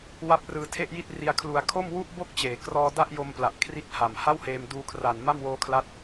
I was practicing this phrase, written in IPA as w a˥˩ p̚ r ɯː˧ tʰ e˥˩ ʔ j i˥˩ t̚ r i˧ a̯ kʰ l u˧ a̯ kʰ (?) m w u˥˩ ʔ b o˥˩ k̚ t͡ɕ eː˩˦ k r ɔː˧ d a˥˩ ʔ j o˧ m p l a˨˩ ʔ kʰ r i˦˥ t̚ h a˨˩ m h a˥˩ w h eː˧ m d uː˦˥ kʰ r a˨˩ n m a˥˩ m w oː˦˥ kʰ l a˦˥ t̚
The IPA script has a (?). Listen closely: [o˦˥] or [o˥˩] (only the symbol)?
o˥˩